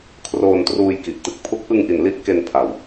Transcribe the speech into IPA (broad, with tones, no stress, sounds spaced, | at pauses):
kʰ r oː˧ n t r uː˧ j k i˨˩ ʔ t ɯ˨˩ k̚ pʰ u˦˥ k̚ ʔ ɯ˧ ŋ ʔ i˩˦ n l i˦˥ ʔ k e˧ n pʰ a˨˩ w